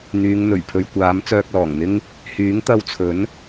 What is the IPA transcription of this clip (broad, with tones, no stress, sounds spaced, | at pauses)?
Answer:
n̪ yː˨˧ ŋ n̪ ɵ˨˩ ɥ pʰ ɵ˨ ɥ kʷ aː˨˥ m t͡s œː˧ k̚ l ɔː˨˩ ŋ n̪ ɪ˥ ŋ | h yː˨˥ ŋ t̪ ɐ˧ w t͡sʰ ɵ˨˥ n